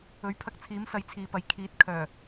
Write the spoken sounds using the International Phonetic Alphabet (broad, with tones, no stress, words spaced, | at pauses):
ɵ˨˥ɥpʰɐ˧k̚t͡sʰiː˨˥m sɐ˨˧jt͡sʰiː˨pɐ˨j kʰiː˨˥t̚ kʰœː˨˩